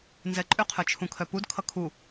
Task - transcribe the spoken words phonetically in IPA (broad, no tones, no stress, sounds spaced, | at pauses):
n z ɛ ǃʼ ʏ qʰ œ t͡ʃʰ ũ kʰ œ p u d kʰ ʌ kʰ u